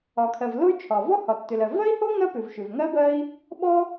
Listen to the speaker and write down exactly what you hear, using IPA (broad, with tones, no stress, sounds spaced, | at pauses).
ɒ˩ kʰ ɜ˩ v l o˥ y̯ t͡ʃʰ ɒ˩ v ɔ˥ h ɒ˩ tː ʏ˩ l ɜ˩ v ɜ˥ i̯ h o˥ ŋ ɜ˥ p ʏ˩ v ʃ ʏ˩ v ŋ ɜ˥ b ɜ˥ i̯ | ɓ ɔ˥